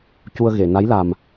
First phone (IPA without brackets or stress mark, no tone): c